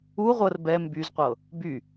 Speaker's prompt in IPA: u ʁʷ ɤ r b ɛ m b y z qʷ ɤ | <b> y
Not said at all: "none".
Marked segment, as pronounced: b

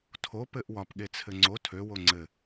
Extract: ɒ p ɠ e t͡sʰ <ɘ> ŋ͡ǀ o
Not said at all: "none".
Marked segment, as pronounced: ɘ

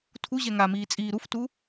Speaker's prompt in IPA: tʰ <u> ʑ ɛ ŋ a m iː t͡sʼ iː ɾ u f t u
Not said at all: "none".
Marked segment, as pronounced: u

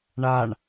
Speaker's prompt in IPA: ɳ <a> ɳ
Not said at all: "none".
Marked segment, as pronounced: a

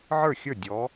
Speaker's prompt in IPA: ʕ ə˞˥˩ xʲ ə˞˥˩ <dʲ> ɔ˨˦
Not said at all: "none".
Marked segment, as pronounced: dʲ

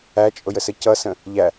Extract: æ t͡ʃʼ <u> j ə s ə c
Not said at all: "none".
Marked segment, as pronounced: ʊ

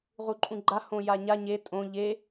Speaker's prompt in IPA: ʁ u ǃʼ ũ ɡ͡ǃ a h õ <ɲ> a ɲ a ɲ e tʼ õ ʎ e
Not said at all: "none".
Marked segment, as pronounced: j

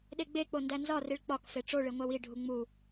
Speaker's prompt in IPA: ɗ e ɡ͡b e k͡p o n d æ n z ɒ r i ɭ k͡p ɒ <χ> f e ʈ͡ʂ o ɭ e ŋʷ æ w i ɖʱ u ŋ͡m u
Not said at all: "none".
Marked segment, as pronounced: k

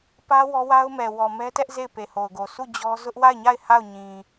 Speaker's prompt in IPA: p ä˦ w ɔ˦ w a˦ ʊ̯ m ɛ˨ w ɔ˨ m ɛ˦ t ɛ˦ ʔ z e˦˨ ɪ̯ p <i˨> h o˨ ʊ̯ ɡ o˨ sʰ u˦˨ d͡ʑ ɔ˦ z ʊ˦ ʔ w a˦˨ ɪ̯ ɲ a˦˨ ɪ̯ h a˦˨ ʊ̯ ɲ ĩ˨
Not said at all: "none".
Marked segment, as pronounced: e˨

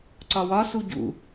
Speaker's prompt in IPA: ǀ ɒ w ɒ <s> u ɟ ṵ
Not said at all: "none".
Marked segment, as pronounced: s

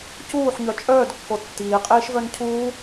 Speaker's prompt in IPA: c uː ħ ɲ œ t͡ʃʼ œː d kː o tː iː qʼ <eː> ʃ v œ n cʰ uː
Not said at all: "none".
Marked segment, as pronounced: iː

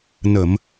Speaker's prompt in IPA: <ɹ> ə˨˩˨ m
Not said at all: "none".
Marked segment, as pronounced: n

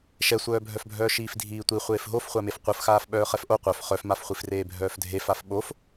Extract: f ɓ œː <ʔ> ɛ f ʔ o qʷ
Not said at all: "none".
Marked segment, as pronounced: χ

